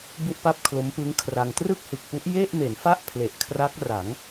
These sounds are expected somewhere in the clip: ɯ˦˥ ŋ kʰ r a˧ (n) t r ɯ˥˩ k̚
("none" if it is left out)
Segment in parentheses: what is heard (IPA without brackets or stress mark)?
ŋ